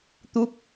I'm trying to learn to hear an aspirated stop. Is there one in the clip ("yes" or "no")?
no